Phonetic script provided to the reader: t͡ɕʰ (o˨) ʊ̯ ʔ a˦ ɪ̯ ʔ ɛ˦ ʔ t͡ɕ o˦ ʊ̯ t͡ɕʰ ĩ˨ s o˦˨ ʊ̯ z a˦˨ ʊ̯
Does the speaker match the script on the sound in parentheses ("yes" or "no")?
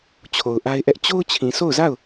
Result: yes